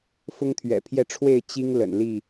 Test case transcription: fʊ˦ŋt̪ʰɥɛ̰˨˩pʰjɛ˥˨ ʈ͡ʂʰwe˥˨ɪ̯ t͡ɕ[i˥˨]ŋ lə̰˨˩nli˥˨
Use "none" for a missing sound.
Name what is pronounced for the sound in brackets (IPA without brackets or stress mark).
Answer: i˦